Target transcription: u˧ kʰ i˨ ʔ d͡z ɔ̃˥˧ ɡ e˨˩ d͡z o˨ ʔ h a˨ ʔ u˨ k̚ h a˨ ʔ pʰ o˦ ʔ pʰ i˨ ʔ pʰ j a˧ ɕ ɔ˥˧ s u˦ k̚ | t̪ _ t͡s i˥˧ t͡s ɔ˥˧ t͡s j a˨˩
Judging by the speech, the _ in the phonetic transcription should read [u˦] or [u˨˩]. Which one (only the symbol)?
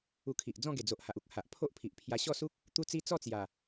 u˦